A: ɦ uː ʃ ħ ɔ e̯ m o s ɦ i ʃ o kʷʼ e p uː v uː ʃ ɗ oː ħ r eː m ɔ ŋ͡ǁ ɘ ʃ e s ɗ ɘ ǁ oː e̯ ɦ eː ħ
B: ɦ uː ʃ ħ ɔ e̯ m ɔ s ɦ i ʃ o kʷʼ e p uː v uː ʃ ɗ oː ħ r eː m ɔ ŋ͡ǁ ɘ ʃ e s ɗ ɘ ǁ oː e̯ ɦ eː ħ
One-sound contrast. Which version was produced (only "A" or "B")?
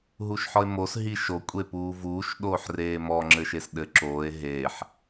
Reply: A